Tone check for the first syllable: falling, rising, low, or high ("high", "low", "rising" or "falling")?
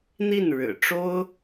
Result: falling